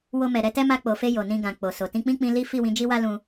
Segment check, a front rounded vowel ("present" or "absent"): absent